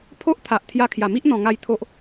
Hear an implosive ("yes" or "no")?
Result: no